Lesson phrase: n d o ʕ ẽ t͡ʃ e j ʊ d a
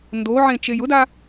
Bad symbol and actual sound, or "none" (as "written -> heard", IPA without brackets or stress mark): none